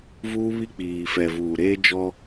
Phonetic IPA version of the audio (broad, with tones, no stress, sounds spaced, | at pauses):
v uː˦ β i˦ k͡p iː˨ f ɛ˨ v uː˨ ɾ eː˦ d͡ʒ ɔ˦